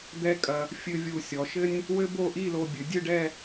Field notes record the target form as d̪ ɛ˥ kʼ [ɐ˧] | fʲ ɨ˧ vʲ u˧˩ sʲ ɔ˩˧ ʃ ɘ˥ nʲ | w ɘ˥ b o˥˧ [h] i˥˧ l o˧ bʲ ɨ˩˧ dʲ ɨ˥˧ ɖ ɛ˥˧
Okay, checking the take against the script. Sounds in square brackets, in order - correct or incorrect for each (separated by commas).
correct, incorrect